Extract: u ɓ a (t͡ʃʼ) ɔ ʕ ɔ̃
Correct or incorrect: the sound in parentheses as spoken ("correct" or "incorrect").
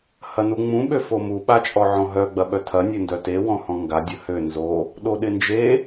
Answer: correct